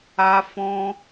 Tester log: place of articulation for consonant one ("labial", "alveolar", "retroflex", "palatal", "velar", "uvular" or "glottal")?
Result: labial